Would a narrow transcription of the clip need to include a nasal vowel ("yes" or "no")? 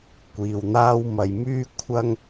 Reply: no